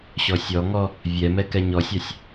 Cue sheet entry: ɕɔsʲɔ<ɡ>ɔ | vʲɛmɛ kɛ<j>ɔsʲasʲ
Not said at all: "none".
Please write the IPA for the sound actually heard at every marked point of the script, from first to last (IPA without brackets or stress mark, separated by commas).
ŋ, ɲ